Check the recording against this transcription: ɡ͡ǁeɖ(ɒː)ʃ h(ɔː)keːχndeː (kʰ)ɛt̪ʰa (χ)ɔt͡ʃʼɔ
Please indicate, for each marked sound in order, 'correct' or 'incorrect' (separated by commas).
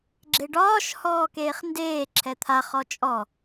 correct, correct, incorrect, correct